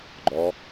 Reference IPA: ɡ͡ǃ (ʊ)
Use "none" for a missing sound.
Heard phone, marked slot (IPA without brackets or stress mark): ɔ